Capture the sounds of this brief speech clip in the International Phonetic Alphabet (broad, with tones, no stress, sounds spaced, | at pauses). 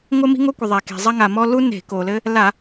ŋʷ ɘ˦ m i̤˦ ŋ o˦ kʷ ɘ˩ ðˤ ɛ˩ k e̤˩ zˤ ɐ˦ ŋ a˩ m ɔ˦ l u˦ n e̤˧˩˧ k o˩ l ɘ˦ | l a˧˩˧